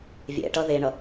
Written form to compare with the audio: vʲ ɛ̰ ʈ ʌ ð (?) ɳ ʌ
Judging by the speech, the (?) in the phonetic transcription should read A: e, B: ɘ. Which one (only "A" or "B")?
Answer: A